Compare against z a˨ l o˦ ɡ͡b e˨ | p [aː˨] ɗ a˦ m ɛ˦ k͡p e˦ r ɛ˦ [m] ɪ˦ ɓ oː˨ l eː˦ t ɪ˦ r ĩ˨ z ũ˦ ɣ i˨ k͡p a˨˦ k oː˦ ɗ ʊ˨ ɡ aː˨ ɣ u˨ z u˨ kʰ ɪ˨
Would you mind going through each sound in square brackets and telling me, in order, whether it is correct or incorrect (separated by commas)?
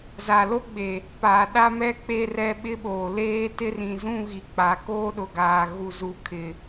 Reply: correct, incorrect